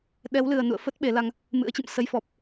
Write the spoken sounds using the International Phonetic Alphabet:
ɗɛ˨˦wlɨ˨˩ə̯nṵ˧˨ə̯ fə˦˥t̚ ɓe˨˦la˧ŋ | mɨ̰˧˥ə̯t͡ɕɨ̰˧˨m sə˨˦j fɔ˨˩p̚

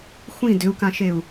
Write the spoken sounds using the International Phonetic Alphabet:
xʷĩ dʏu̯kãʃeu̯

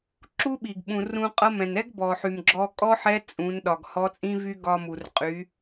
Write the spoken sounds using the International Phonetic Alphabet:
ǁu˥ɓi˩ɡ ɓũ˩rũ˧qʼʌ˧˥mɛ̃˩n ɛ˥ɡbɔ˩ħy˩m ɡ͡ǁɔ˧ kʼɔ˥ħɛ˧˥ t͡sʼũ˩˧nɗɒ˩ɡ hɔ˧˥t͡sʼĩ˥vy˥ ɡɒ˧mu˩r qʼy˩˧

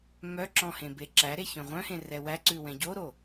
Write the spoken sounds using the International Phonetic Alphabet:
mœǁɔ̃ hẽbeǁæɾe çœ̃ʁʷœ̃hẽ rɛwæǀʉ wɛ̃ɟoɾo

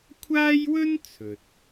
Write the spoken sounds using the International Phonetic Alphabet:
kʷʰaː˥jwɵ˥n t͡sʰɵ˨t̚

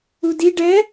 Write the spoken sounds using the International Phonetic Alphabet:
udi ɖɛ

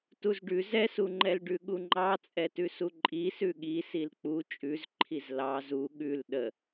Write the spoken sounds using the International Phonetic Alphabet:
tuzɖʉ zɛsuŋ͡ǃɛlɖʉ ɠuŋ͡ǃɑ t͡sʼɛtʉsuǃʼi sʉɠi silk͡pu t͡ʃʼʉzǃʰiz lɑ zu ɠʉl ɗə

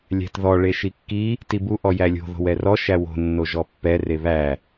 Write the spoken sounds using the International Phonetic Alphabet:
lʲæ̤tðɔ ɭeʃikːi | tibu ʔɔjælʲo̤ ðo̤wɛrɔ ʃæwo̤ nːoʒɔpːɛ reβæ

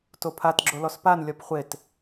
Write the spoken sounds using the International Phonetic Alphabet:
topʰat ɡ͡ǁolɔspan lʲɒpχʷet

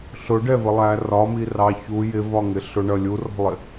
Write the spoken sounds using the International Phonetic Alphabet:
ɬʊɖɛvəlˠæ rɒmirɑ çu jɪvɒŋɪ ɬʊɳʌ lʲurɔ̤lˠɪ

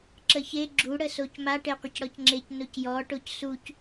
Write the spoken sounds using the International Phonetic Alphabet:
ǁəçe ɡ͡ǁu ɽəsocma ʈeqʷɪcɽɔcŋ͡ǁec nocjɔ ʈocsuc

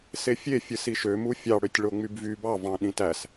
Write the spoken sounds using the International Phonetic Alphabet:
sefʲefʲɯ siʃømu fʲɑɽøtʲ ɭoŋ͡mybvy bɑvɑ̃ ɗĩtæs

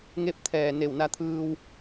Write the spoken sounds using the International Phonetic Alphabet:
ŋe˧p̚t̪ʰɛː˧˩ ne˧˩wna˧t̪ʰɯː˧w

